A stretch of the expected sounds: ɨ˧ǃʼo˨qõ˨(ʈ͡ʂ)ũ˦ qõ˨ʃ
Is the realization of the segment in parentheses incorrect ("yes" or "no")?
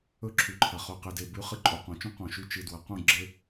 yes